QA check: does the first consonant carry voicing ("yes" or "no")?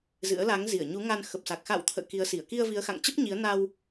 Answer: yes